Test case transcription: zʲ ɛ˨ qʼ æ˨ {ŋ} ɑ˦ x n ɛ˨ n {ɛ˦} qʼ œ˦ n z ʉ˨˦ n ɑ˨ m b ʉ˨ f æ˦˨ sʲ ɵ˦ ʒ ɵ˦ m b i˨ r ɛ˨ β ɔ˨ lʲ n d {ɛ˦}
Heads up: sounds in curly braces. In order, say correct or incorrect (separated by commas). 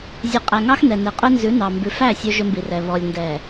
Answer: correct, incorrect, incorrect